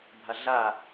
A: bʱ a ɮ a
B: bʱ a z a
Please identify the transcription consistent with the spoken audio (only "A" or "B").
A